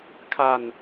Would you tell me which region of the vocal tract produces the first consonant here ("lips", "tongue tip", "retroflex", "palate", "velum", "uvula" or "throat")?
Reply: velum